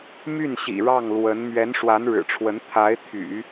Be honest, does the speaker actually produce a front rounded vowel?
yes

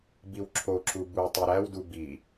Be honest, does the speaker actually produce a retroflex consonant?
no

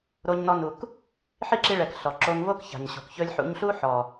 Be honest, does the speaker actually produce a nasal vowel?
no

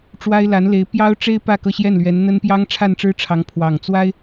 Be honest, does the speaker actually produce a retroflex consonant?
yes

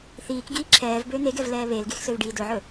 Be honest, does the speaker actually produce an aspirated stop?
yes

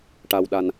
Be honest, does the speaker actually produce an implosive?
yes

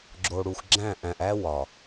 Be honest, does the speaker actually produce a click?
yes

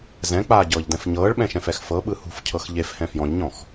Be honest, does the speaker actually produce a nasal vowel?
yes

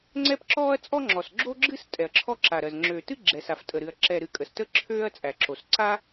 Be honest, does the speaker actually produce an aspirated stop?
yes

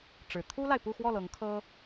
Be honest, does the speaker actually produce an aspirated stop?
yes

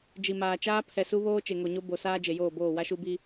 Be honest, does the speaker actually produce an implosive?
no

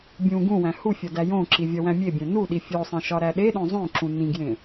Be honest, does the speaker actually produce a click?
yes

